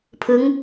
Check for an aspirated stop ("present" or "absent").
present